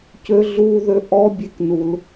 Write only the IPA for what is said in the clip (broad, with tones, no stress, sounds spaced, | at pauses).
c ø˦ ɮ uː˦ ð ø˦ ʔ ɔ˦ bʲ e˦ k n u˦ l